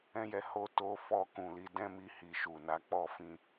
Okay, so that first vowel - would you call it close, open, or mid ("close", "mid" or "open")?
mid